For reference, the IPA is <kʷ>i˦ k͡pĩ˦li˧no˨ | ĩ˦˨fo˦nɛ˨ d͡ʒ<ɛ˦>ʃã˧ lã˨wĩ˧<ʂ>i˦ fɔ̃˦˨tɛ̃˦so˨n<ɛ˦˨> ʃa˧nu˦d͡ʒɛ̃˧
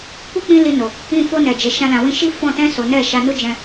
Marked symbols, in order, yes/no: yes, no, no, yes

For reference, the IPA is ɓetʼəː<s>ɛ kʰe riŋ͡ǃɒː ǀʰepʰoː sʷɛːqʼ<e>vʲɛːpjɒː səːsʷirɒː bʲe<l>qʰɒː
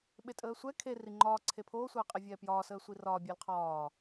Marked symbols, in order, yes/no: no, yes, yes

